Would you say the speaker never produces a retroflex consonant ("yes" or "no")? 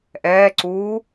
yes